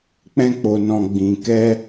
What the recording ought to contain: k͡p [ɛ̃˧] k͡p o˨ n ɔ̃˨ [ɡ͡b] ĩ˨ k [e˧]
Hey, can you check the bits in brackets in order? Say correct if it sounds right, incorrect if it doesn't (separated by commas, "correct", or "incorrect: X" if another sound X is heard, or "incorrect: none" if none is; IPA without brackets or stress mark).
correct, correct, incorrect: ɛ˧